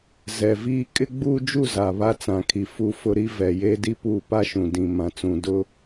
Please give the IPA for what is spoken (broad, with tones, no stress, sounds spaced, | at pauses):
z ɛ˨ v iː˦ kʼ ɪ˦ ɡ͡b uː˦ d͡ʒ u˦˨ z a˨ β a˦ t͡s ã˨ kʰ i˨ f u˨ f ʊ˨ ɾ i˦ v ɛ˨ j e˦ d i˦ p uː˦˨ p a˦ ʃ ũ˨ d ĩ˨ m ã˨ t͡s ũ˨ d ʊ˦